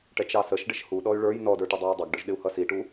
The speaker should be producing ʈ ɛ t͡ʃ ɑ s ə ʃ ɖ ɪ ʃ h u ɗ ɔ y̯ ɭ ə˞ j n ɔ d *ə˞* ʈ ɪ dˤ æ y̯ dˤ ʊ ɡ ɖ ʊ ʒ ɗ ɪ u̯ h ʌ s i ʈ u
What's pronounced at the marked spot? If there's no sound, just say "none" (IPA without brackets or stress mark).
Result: ə˞